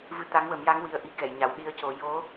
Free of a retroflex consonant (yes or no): yes